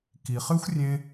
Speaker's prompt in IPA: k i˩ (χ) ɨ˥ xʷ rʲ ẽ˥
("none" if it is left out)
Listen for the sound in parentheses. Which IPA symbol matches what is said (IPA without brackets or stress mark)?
χ